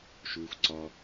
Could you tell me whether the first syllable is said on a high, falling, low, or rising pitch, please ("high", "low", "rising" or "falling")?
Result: low